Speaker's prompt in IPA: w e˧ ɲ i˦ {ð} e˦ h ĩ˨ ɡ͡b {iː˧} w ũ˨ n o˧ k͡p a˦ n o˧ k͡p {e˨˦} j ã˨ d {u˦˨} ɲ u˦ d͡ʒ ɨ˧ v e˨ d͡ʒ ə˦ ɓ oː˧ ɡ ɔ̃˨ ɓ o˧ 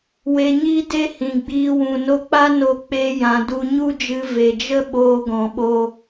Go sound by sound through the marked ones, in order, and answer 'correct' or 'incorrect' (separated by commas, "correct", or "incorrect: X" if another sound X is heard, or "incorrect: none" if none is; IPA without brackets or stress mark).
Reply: incorrect: d, correct, incorrect: e˧, incorrect: u˧